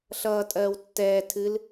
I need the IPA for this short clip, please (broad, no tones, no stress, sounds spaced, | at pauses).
ɬ ʌː tʼ ɜː w tː ɛː tʰ ɨ l